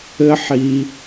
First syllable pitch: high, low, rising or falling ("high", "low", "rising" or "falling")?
high